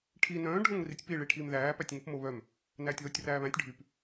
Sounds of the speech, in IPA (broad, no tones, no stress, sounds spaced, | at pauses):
ʈʰ i n œ̃ː ɖʱ õ ŋ r i tʲ p i ɭ i ʈʰ iː m ð æː p æ tʲ ŋ ʊ p m o β œ m | n æː tʲ ð o tʲ r æː β æ̃ tʲ ɖʱ y p